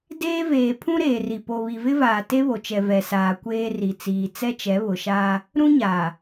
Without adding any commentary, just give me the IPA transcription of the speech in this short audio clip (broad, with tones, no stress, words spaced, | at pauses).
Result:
deː˦veː˨ pʰũ˦ɾeː˨ri˨ po˨ βi˨vɪ˦vaː˨ te˦βo˨t͡ʃɛ˨ vɛ˨saː˨kʷeː˦ ri˨ t͡siː˨t͡sɛ˦t͡ʃɛ˨˦ βʊ˨ʃaː˦ | ɾũ˦ɲaː˨